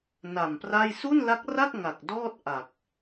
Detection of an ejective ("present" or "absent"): absent